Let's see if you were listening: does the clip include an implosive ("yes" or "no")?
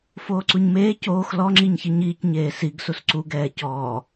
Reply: no